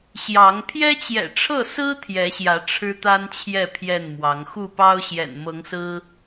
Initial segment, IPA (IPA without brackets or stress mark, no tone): ɕ